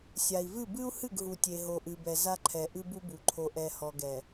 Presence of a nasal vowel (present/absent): absent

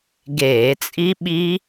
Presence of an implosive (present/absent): present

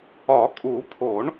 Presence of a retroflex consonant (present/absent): present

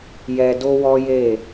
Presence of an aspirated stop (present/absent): absent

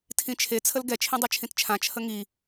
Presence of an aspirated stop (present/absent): present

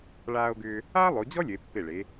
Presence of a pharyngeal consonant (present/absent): absent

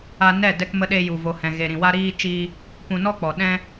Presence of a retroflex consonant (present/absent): absent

